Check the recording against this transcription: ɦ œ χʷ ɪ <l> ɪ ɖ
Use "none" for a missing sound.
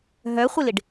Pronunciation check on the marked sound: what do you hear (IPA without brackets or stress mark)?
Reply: l